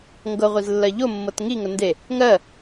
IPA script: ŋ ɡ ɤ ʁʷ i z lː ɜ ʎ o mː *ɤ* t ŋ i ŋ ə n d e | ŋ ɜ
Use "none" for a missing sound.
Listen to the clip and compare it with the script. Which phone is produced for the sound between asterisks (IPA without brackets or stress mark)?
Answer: ɤ